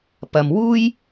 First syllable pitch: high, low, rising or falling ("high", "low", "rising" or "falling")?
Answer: low